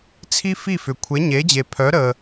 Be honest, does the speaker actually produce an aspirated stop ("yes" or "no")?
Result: yes